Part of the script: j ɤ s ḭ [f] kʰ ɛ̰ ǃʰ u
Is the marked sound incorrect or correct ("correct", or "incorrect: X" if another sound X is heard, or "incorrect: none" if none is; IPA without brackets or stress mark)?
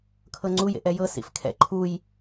correct